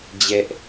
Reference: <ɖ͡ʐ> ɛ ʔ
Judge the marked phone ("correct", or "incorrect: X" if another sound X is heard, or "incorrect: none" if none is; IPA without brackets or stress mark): incorrect: d͡ʑ